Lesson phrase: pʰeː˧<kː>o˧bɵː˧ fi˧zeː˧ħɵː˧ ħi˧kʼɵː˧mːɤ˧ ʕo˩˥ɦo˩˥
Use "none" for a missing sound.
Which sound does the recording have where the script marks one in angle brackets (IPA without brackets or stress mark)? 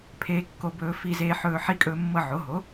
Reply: kː